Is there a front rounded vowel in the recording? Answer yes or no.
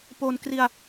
no